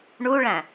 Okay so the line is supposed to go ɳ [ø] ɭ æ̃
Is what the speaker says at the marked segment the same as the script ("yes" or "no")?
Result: no